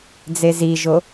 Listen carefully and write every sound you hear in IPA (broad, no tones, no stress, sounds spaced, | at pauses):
d͡z e z i ʒ o